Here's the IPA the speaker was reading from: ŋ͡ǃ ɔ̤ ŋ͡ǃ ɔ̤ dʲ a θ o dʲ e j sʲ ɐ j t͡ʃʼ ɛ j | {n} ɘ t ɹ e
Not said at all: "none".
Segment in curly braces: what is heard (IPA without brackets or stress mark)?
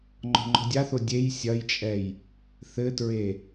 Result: θ